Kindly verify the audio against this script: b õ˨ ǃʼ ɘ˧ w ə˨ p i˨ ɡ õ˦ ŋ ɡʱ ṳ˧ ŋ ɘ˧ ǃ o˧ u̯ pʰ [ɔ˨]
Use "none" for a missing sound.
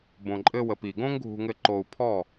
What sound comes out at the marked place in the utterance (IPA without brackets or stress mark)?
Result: ɔ˦˨